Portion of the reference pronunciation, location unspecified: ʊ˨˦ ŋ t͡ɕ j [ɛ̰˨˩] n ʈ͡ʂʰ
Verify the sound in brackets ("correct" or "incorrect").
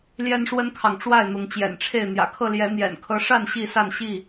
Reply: correct